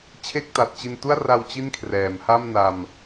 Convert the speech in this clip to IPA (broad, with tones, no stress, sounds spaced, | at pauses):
t͡ɕʰ e˥˩ k̚ t a˨˩ t̚ t͡ɕ i˧ n t u˥˩ a̯ r a˧ w t͡ɕ i˥˩ n kʰ r ɛː˩˦ m h a˥˩ m n a˧ m